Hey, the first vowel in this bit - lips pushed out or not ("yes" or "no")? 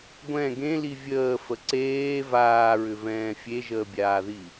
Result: no